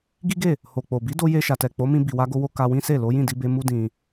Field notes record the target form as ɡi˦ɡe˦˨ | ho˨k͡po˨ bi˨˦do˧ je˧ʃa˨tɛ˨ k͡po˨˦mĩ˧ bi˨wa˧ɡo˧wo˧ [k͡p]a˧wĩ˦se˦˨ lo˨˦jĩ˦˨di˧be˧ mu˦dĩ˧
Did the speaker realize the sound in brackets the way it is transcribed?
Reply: no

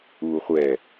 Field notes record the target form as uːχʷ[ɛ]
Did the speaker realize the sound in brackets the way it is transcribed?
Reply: yes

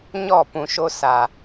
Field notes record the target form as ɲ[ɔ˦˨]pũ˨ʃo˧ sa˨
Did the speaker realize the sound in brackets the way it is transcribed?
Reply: yes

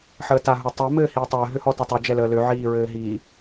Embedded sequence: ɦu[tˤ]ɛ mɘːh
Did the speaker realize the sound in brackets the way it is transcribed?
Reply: yes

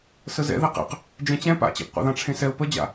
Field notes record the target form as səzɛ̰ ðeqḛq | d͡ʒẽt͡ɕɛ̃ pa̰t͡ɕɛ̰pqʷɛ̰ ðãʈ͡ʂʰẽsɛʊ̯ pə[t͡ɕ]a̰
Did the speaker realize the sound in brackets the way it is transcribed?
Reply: no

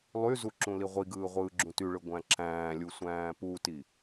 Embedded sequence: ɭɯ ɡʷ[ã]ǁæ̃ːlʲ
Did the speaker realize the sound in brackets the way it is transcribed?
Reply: no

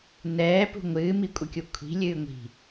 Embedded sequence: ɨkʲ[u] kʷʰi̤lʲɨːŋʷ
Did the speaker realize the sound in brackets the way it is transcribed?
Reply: yes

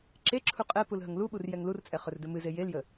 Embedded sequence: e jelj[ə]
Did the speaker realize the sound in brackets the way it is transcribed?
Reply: yes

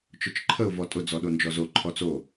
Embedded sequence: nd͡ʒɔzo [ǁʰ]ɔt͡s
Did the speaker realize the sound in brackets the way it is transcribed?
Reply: no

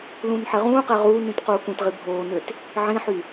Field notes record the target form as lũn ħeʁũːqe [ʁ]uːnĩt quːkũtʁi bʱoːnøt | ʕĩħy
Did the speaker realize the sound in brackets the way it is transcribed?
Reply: yes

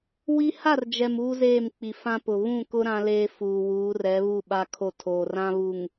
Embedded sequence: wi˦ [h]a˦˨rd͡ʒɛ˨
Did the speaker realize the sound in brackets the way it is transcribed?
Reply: yes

